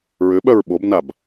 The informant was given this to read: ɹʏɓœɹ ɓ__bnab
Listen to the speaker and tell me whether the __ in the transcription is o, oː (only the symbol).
o